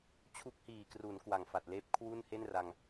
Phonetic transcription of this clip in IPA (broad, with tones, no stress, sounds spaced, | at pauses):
t͡ɕʰ u˦˥ k̚ h iː˨˩ k r u˩˦ n k w a˨˩ ŋ f a˨˩ t̚ l eː˦˥ p̚ kʰ w u˥˩ n h e˥˩ n r a˧ ŋ